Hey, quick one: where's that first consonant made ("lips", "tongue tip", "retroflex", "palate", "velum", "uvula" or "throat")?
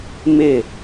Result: lips